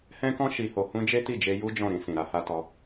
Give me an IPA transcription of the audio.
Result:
h ɛ̃˦ k ɔ̃˦ ʃ i˧ h o˧ h ũ˦ d͡ʒ e˦ t i˦˨ d͡ʒ e˧ j u˦ d͡ʒ ɔ̃˦˨ ɾ ĩ˧ s ĩ˨ ɾ a˨˦ h a˧ t ɔ˧

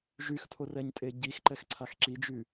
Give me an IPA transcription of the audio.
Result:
ʒ y x tʰ o r ɛ ɲ tʼ e ɟ i x ǃ ɛ x ǀʰ a x ǁ i d͡ʒ y

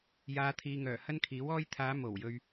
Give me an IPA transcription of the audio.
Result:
j aː˨˧ t̪ʰ iː˨ ŋ œː˨˩ h ɐ˥ n kʰ iː˨˥ w ɔː˥ j t̪ʰ aː˨˧ m o˨˩ w j ɵ˨ ɥ

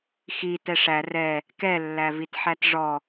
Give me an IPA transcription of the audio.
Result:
x i t ɛ ʂ æ r ɛ | k ɛ lː æ v i t ħ æ t ʐ ɔ

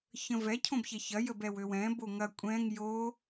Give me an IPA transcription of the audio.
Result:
ç ə̃ v ɛ cʰ õ b ç ɛ ç ɐ j ə b ɛ w ø w ɛ̃ b o ŋ ɐ kʷʼ ɛ̃ ŋ j o

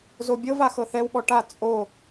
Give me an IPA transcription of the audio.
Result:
z o bʲ ɤ v a x ɤ θ ɛ w ɓ ɔ ʈ a t͡sʼ o

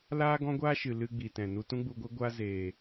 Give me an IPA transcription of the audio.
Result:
l aː˦ ɡ ɔ̃˦ ɡʷ aː˦ ʃ ɨ˨ l ɨ˧ ɡ͡b i˨ t ɛ̃˨ n u˧ t ũ˦ ɡ͡b u˧ ɡʷ e˦ ɡʷ a˦ z eː˨

